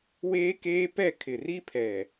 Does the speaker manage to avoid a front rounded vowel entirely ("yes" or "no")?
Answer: yes